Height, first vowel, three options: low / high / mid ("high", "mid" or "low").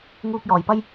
high